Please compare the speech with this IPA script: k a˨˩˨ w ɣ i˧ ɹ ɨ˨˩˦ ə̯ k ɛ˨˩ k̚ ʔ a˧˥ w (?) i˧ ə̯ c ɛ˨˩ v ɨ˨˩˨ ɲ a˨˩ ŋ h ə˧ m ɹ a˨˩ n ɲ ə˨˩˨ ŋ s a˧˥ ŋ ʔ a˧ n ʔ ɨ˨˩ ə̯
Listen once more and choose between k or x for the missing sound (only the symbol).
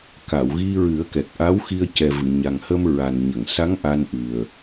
x